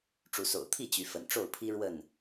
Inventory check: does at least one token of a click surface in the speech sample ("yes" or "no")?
no